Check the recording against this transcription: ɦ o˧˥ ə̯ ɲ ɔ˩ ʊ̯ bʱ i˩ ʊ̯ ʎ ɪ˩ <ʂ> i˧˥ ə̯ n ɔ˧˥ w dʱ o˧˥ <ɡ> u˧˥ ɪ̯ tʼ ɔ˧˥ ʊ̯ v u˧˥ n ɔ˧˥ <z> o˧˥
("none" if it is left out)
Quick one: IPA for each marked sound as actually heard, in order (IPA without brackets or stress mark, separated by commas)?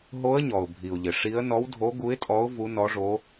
ʂ, ɡ, ʐ